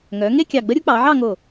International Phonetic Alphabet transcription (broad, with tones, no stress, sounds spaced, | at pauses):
ŋ œ˩˧ ŋ e˥˧ kʲ ɑ˧˩ ɡ͡b ə˥ ɾʲ u˥ k͡p ɑ˩˧ ʕ ɑ˥˧ ŋ o˧˩